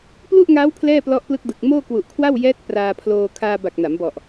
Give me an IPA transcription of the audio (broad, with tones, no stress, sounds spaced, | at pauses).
p l u˥˩ ʔ ŋ aː˦˥ w pʰ l ɛː˥˩ p l ɔ˦˥ ʔ p l ɯ˦˥ k̚ d ɯ˨˩ k̚ m oː˥˩ k w u˨˩ ʔ kʰ w a˥˩ w j ɛː˦˥ t̚ p r aː˧ pʰ l oː˧ kʰ aː˧ b a˨˩ k̚ n a˩˦ m b ɔ˨˩ ʔ